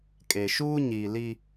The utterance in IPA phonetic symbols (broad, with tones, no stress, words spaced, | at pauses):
kʼeː˨ʃuː˦ ɲiː˨ li˦